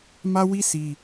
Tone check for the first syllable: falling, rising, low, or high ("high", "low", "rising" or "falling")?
high